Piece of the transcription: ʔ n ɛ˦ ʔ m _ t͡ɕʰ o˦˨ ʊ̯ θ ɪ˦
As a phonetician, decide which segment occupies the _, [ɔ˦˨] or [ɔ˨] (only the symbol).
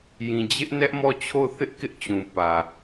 ɔ˦˨